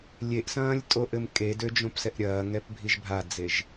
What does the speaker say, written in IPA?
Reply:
lʲ e ʔ s ɐ̃ː lʲ tʼ o ʔ ɘ m kʼ e d ø d͡ʒ õ p s ɛ ʔ ɾʲ ɐː ŋ ɛ p bʱ i ʒ bʱ a d͡z e ʒ

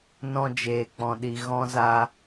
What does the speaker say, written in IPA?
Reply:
n ɔ̃˧ d͡ʒ eː˨ k͡p ɔ̃˨ ɗ i˨ ɣ ɔ̃˦ z a˦

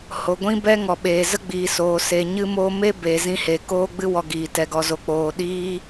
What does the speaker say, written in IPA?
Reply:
h o˨ ɡʷ ĩ˦ b ɛ˦ ŋ ɔ˨ ɓ eː˨ z ə˦ ɡ͡b iː˨ s oː˨ s e˨ ɲ ɨ˦ m oː˦ m e˦ b eː˨ z ĩ˧ h e˨ k oː˦ ɡ͡b ɨ˦ w ɔ˧ ɡ iː˨ t ɛ˧ ɡ ɔ˧ z o˧ k͡p oː˨ ɗ iː˦

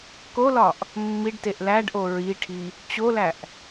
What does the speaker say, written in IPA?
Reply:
k o l ɒ ʔ | mː i ɖ t e ʔ l æ ɖ ʔ o ɹ i ʈʰ i | t͡ɕ o l æ ʔ

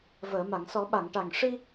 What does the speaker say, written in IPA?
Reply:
v əː˨˩˨ m a˨˩˨ ŋ s ɔ˨˩˦ ɓ a˨˩˨ ŋ ʈ a˨˩ ŋ ʂ i˧

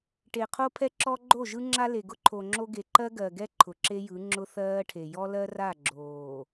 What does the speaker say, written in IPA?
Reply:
ʈ e˨ qʰ o˦ pʰ ɛ˦ ǁ ɔ˦ ɡ͡ǃ o˦˨ ʒ ɯ˦ ŋ͡ǁ a˦ l e˨ ɡ ʊ˦ ǃʰ o˨ ŋ͡ǁ o˦ ɡ e˨ ǃ ɜ˦ ɡ ɜ˨ ɡ ɛ˦ ǃʰ ʊ˨ ǁ e˦ j ɯ˨˦ ŋ͡ǁ ʊ˦ θ ɜː˦ ʈʰ e˨ j ɔ˦ l ɜ˦ r a˦˨ ɡ͡ǁ oː˨

